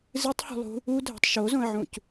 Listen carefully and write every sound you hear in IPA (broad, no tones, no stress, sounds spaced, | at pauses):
z ɨ tˤ h ṳ lˠ ṳ | u dʱ ɛ̤ tˤ ʃ o z õ ə̯ ʕ ũ c